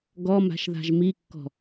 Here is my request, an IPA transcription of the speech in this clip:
ɡ ɔ m a̤ ʃ ð a̤ ʒ m i kː ɔ̤

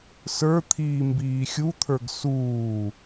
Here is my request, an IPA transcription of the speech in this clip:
s ə˞ t̪ʰ iː m b iː xʲ u t̪ʰ ə˞ ɡ s uː

